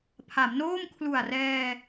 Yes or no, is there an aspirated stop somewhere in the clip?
yes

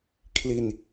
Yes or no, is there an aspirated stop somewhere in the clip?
yes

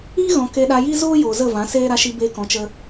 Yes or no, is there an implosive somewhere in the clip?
yes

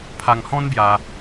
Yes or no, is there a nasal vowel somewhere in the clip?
yes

